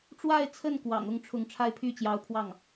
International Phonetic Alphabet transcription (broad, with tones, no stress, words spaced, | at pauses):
ʈ͡ʂwa˥˧ɪ̯t͡sʰə˥˩n kwɑ̰˨˩ŋʊ˥˩ŋʈ͡ʂʰʊ˧˥ŋ ʈ͡ʂʰa˥˧ɪ̯pʰy˥˩t͡ɕjɑ˧˥ʊ̯pʰwɑ˥˩ŋ